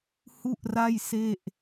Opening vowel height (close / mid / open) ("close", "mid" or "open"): close